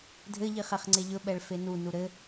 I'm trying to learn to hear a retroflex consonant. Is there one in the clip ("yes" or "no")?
yes